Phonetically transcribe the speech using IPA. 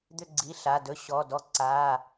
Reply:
d̪ ʏ˦˨ ɡ͡ǀ i˩˧˩ ɬ a˩˧˩ d ɵ˧˥ ɕ ɔ˩˧˩ d ɔ˧˥ ǀ a˩˧˩

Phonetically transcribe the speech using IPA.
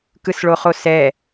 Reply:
k ɯ s ɭ o χ o s ɛ

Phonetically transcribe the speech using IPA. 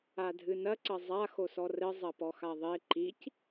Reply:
a dʱ ɨ n ɐ ǀ ɐ zˤ a x o s ɔ r ɘ zˤ ɐ p ɔ x a ðˤ e ǃ i c

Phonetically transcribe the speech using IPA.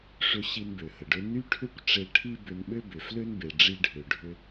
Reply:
ʂ ʏ˧ ɕ i˧ n b ø˩ h ə˩ ɖ ø˥ n y˥ ʈʰ ʏ˥ kʷ ʈ͡ʂ e˧ ʈʰ i˥ b ʏ˧ n ɓ ø˥ b ʏ˩ f l ø˥ n b e˩ ɖ͡ʐ i˧ ɖʱ ø˩ ɖʱ ʏ˧

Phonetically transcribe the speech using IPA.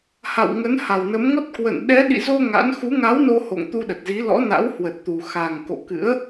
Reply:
h a̰˧˨ w ŋ ə˨˦ n h a˨˩ w n ə˨˦ m ŋ ɔ˦˥ t̚ k w ə̰˧˨ n ɗ ɛ˨˦ ɗ ḭ˧˨ z o˧ ŋ a̰˧˥ n x u˨˦ ŋ a˨˦ w n o˧ h o̰˧˨ ŋ t̪ u˧ ɗ ə˨˩ t̚ z i˨˦ l ɔ̰˧˥ n a̰˧˥ w h w ə˨˩ t̚ t̪ u˨˩ x a˨˩ ŋ k o̰˧˨ k ɨ̰˧˥ ə̯

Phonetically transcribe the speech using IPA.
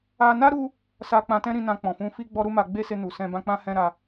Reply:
a˧ n a˦ ɾ u˦ | s a˧ k͡p ã˧ t ɛ̃˦ ɾ ĩ˧ n ã˧ k͡p ɔ̃˨ f ũ˧ f i˦ ɡ͡b ɔ˦ ɾ u˦ m a˧ ɡ͡b e˦ s e˧ n u˨ s ɛ̃˧ b ã˦ k͡p ã˦ h ɛ̃˦ ɾ a˧

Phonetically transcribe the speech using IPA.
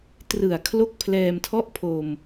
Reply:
t r ɯ˨˩ a̯ kʰ l o˦˥ k̚ pʰ l ɛː˧ m tʰ ɔ˥˩ ʔ pʰ o˧ m

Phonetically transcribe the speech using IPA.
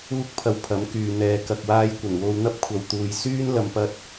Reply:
uː˥ k̚ pʰ ɐ˧ w pʰ ɐ˨˥ m k yː˨ n̪ ɛː˧ k ɐ˧ k̚ w aː˧ j kʷ ɐ˨˩ n w o˧ w n̪ ɐ˥ p̚ kʷʰ ɐ˨ w t̪ uː˨ j s yː˥ n l ɐ˨ m p ɐ˥ t̚

